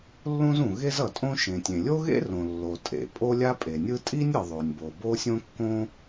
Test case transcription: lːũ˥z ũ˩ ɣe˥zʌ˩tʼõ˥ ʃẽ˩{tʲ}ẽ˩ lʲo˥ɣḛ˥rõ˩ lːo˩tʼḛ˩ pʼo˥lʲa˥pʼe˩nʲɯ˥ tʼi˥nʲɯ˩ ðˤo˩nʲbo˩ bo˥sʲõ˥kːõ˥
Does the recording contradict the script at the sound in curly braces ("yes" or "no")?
no